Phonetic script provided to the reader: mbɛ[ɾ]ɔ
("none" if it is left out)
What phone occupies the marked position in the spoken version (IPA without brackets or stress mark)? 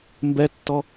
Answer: tː